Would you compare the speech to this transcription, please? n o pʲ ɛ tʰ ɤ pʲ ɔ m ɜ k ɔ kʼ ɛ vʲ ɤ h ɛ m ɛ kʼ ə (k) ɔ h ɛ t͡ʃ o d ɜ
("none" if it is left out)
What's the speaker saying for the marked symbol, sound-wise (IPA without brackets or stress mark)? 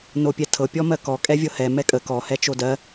k